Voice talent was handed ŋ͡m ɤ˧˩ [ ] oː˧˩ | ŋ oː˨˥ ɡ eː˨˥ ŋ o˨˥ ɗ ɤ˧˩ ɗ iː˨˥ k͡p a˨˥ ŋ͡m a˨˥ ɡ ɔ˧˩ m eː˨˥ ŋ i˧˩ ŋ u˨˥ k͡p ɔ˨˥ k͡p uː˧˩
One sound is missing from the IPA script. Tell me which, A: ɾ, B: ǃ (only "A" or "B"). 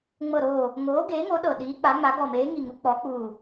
A